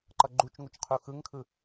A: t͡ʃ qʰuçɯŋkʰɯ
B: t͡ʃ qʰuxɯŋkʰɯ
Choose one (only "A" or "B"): B